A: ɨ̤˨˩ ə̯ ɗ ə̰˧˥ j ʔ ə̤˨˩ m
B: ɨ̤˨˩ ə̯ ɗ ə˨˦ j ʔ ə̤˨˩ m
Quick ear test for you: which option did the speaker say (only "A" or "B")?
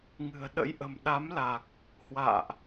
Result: A